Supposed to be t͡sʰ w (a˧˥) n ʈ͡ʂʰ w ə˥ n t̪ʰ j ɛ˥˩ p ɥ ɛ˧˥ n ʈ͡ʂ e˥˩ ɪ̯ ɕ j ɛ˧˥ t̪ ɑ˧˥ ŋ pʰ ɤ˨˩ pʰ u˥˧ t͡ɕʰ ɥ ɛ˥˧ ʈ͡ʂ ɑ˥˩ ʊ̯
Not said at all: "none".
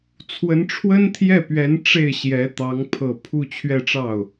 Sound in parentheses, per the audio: ə˧˥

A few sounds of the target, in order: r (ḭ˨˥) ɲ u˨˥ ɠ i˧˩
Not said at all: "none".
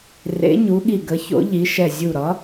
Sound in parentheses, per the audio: ḛ˨˥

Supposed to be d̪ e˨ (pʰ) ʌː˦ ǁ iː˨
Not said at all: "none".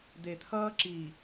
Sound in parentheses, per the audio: t̪ʰ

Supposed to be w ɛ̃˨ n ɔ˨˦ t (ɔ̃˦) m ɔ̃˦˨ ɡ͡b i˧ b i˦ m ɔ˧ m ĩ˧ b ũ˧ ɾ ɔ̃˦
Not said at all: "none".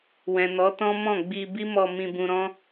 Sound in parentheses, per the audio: ɔ̃˦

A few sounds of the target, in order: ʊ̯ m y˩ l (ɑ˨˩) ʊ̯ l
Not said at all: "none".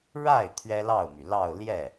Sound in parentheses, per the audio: ɑ˥˧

